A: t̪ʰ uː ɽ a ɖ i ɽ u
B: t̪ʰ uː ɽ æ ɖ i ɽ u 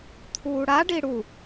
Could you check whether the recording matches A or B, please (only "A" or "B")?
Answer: A